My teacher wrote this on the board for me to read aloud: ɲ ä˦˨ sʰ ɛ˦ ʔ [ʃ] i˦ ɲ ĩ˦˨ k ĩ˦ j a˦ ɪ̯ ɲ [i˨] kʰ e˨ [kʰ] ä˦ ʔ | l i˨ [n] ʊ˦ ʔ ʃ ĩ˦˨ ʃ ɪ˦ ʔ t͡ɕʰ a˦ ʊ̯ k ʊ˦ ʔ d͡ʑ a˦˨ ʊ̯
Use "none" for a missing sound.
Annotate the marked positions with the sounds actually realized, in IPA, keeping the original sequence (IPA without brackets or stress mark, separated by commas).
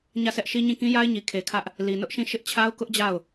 ʃ, i˨, kʰ, n